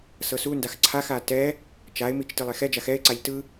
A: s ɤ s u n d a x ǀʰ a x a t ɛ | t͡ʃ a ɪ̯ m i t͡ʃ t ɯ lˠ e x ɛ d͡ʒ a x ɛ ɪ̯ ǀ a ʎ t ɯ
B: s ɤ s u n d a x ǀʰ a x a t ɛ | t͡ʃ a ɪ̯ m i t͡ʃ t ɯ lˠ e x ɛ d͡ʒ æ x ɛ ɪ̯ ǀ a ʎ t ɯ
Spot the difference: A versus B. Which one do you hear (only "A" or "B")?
A